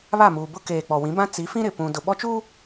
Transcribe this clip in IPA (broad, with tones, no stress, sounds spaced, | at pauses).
β a˦˨ m uː˨ b ʊ˦ k eː˨ k͡p ɔ˨ w ĩ˨˦ b ã˦ t͡s i˨˦ f ĩ˦ ɾ ɪ˨ p ũ˨ d ʊ˨ ɓ ɔ˦ t͡ʃ u˦